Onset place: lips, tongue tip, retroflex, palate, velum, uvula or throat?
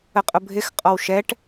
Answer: uvula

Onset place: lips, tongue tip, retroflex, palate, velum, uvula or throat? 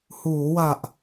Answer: throat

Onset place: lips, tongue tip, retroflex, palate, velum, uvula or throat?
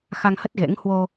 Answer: velum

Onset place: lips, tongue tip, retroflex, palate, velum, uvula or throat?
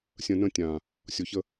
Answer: tongue tip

